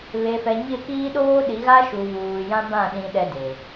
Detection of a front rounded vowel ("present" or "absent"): absent